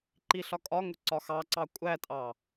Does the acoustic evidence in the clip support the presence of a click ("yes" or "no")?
yes